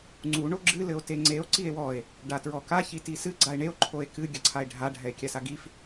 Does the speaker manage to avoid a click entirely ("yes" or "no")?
no